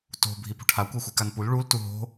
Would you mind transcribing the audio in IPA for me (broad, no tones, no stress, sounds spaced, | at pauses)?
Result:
t o̤ bʱ i p ṳ ʈʰ a kʷ ɛ xʷ i k a n p u l ɭ u l t u ɦ o̤